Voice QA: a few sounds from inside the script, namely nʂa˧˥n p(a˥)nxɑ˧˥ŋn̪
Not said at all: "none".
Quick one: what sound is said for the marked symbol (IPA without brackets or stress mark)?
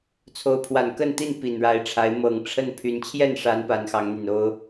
a˧˥